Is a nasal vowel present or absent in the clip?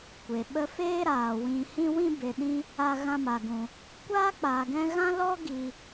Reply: present